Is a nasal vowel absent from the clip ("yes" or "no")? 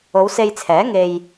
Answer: yes